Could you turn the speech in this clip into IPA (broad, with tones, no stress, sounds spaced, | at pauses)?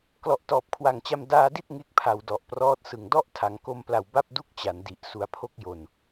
k l ɔ˨˩ ʔ t ɔː˨˩ p̚ kʰ w a˨˩ ŋ t͡ɕ a˧ m d aː˧ d i˥˩ t̚ ŋ e˦˥ k̚ pʰ a˨˩ w d ɔ˨˩ ʔ p r ɔː˦˥ t̚ s ɯ˨˩ ŋ d ɔ˥˩ ʔ tʰ a˩˦ ŋ k o˧ m p l a˨˩ w b a˥˩ p̚ d u˥˩ k̚ t͡ɕ a˩˦ n d i˨˩ ʔ s u˨˩ a̯ pʰ o˦˥ k̚ j o˨˩ n